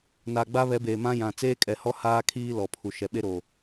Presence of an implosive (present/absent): present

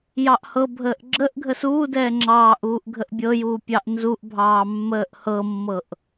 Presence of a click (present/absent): present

